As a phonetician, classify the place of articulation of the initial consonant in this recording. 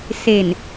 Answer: alveolar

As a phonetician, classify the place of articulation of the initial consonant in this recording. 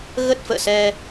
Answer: velar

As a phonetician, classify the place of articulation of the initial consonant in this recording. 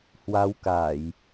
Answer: glottal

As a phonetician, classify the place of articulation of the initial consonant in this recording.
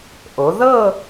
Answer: glottal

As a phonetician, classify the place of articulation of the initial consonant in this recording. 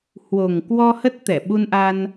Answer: glottal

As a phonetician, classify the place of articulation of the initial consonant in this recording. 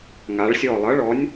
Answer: velar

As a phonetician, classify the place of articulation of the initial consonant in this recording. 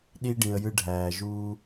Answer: alveolar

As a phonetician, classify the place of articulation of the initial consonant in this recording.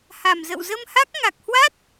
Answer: glottal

